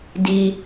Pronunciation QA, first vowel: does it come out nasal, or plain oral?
oral